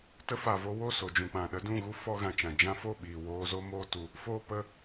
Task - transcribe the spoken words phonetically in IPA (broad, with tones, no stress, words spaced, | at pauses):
tə˧fa˨vo˧wo˦˨ so˨d͡ʒũ˨k͡pã˨ ɗə˧dũ˦˨ɣu˦ fɔ˧ɣã˨t͡ʃã˨ d͡ʒã˧fo˦˨ɓiː˨ woː˧zo˦ moː˦tu˧ | foː˦ pə˧